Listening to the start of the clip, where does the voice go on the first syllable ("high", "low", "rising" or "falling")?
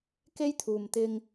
high